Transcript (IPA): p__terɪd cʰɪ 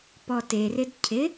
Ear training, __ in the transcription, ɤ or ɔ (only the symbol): ɔ